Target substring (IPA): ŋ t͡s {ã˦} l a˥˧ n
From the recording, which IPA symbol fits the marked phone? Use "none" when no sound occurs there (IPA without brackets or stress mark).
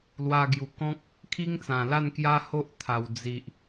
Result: ã˨˩